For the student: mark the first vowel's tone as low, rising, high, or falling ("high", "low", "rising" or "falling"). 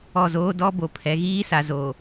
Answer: falling